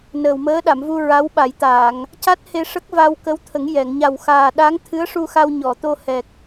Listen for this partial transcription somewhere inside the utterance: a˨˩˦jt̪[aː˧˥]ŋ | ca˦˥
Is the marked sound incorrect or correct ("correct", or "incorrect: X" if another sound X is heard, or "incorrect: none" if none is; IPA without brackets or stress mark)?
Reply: incorrect: aː˨˩˨